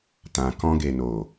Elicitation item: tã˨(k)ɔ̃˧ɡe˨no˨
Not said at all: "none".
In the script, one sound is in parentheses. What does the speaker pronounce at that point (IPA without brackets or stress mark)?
k